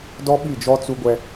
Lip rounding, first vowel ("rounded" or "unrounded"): rounded